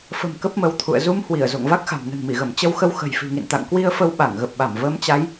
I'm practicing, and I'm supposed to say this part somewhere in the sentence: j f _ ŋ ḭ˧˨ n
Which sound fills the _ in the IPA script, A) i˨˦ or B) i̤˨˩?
B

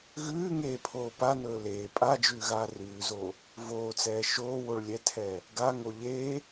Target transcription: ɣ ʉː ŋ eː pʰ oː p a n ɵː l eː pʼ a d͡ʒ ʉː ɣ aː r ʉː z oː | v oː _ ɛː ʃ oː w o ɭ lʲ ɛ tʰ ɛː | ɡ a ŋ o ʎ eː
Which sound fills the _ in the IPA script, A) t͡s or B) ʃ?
A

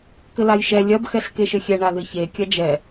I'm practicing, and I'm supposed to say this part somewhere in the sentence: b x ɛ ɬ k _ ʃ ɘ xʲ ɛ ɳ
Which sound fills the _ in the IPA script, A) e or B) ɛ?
A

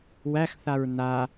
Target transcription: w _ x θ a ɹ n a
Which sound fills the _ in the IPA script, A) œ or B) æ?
B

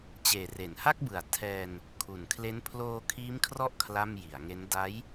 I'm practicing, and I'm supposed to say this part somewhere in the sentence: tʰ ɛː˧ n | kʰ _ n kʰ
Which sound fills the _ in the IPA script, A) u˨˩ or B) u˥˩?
A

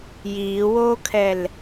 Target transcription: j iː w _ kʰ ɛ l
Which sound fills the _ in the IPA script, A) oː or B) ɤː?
A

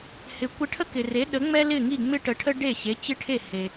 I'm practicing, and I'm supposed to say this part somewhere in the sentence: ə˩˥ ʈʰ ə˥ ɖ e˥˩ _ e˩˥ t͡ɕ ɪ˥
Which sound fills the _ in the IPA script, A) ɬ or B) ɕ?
B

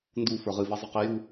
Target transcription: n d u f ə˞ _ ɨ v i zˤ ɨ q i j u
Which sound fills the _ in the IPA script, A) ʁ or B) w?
A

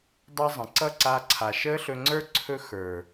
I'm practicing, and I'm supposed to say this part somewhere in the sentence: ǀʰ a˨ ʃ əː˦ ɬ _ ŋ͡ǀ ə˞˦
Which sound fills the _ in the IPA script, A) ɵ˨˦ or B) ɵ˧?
B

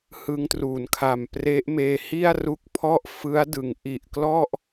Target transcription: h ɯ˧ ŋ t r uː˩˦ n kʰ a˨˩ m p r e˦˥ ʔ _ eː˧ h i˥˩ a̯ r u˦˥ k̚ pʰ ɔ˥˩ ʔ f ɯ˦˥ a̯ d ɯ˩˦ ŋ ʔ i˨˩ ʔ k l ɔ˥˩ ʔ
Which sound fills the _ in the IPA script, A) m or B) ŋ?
A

